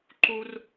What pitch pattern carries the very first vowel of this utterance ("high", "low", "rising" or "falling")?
low